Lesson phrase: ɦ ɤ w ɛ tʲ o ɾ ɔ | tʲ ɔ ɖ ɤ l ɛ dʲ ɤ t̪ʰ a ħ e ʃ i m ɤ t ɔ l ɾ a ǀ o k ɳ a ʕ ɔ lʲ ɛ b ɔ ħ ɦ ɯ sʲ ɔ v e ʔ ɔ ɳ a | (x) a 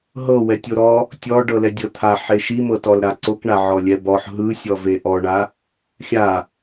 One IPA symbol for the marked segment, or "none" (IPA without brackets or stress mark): xʲ